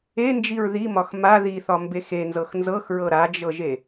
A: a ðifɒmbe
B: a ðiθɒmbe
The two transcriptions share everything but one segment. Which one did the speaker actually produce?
B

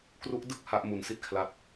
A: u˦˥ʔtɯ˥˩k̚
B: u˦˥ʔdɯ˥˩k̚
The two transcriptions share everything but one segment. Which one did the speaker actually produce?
B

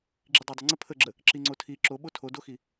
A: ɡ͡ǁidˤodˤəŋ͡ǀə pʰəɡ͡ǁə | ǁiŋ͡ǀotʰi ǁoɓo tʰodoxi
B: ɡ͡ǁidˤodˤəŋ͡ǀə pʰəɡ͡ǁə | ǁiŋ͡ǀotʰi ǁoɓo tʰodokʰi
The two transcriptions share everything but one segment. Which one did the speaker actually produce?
A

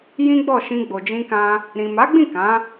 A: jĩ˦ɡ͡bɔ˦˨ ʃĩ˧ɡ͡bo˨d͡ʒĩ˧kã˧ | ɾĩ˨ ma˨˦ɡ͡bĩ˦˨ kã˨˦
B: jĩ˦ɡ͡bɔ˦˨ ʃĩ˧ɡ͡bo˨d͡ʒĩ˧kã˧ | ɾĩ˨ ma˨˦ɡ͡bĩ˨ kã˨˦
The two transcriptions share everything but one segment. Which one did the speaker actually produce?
A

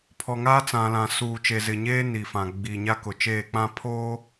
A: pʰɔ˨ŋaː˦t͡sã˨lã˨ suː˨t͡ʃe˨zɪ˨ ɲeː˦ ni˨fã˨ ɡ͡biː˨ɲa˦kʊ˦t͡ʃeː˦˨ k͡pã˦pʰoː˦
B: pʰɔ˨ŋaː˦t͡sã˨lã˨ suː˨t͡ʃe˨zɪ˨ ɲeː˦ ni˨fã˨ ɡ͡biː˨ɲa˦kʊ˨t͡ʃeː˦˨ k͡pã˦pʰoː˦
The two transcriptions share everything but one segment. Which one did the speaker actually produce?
B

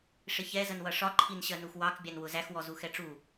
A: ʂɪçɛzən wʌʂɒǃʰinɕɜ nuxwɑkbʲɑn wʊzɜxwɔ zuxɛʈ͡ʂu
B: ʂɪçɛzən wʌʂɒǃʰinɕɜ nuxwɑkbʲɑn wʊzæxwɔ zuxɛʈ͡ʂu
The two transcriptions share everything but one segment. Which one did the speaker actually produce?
B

